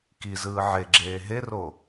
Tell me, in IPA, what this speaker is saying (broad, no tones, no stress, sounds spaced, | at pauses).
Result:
k i z ɯː ʕ e ɡ͡ǁ eː ɦ e r o